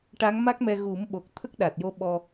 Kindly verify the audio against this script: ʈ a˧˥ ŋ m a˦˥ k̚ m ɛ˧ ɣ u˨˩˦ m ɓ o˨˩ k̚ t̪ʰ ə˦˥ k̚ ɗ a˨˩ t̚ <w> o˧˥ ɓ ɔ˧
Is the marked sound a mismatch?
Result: yes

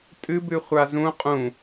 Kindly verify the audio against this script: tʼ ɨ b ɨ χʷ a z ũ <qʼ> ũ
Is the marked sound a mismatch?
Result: no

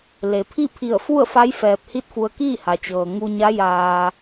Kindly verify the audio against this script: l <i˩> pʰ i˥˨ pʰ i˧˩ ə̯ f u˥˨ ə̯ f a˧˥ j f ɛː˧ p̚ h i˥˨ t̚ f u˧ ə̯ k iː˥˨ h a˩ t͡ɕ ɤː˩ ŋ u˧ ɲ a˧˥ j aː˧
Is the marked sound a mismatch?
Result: yes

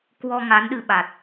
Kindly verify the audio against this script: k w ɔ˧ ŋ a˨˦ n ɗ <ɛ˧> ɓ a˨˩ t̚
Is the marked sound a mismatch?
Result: yes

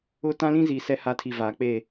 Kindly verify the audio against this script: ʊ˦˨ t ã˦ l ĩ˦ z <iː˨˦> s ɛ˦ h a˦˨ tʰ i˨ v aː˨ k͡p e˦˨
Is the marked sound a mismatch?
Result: yes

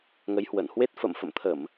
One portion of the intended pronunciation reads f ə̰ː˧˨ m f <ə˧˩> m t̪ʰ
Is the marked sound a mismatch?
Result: yes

